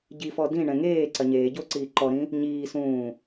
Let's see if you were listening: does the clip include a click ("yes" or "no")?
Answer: yes